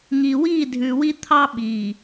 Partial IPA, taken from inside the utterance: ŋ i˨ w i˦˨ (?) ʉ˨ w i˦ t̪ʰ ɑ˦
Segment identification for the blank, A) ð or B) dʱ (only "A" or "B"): B